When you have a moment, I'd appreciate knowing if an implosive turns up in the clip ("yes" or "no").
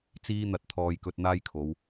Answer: no